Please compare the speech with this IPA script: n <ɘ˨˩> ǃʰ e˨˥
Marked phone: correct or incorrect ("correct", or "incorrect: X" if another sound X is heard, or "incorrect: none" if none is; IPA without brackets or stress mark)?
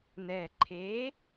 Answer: incorrect: ɛ˨˩